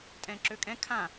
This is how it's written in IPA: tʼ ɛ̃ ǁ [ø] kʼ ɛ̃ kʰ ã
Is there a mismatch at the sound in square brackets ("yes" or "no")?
no